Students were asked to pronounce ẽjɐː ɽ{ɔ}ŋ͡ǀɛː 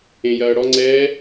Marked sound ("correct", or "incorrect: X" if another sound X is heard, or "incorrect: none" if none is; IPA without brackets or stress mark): correct